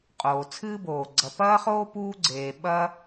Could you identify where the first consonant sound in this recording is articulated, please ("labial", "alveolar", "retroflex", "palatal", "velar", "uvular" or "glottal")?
uvular